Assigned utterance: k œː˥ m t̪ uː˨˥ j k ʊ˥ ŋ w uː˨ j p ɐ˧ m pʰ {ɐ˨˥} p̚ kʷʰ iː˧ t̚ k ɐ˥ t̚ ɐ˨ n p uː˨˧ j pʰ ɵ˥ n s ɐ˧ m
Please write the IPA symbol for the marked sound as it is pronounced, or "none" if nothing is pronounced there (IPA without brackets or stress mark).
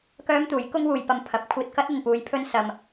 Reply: ɐ˨˥